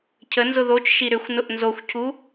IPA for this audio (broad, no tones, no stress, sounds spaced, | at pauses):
cʰ ə n z ʊ ð o t͡ʃ ʃ i ɾ ʏ xʷ n ʊ ʔ n z o xʷ cʰ u